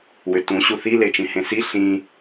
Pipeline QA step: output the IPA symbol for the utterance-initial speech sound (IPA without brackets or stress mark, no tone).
w